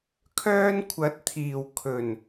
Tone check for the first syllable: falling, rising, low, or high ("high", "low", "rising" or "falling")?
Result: high